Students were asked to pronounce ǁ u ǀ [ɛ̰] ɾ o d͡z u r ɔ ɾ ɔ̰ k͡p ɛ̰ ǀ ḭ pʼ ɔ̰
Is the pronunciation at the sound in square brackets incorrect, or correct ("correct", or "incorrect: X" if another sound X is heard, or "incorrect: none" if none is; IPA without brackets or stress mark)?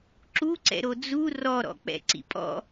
correct